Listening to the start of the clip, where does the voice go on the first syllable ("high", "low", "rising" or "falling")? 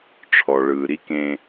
low